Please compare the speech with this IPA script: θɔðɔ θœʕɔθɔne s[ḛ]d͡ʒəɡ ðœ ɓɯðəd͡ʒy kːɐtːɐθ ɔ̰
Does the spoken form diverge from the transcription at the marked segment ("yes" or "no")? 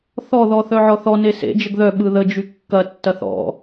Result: no